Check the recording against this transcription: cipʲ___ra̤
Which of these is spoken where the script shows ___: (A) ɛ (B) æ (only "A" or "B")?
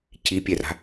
A